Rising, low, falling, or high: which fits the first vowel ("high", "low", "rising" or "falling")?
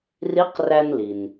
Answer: rising